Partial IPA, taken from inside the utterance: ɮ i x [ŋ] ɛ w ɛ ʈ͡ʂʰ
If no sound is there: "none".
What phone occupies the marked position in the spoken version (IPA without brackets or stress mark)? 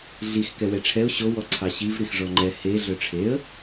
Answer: k